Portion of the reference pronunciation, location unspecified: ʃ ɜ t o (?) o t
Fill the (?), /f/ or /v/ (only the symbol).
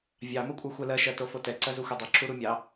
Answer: f